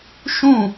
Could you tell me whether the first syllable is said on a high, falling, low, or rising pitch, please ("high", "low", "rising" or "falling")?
falling